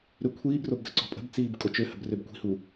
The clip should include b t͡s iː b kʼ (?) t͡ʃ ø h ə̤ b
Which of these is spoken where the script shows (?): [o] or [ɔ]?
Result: o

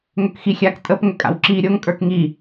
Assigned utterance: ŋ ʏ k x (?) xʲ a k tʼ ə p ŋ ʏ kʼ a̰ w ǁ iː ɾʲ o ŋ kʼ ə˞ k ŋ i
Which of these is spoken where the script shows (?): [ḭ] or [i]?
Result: i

